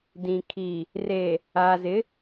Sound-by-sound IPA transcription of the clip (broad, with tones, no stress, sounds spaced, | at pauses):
d ĩ˨ kʰ iː˨ | r eː˨ | aː˨ z ɪ˨˦